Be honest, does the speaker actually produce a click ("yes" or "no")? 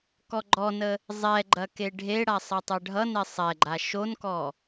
yes